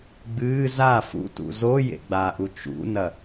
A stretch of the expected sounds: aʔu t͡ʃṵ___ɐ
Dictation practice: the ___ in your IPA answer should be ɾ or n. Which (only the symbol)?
n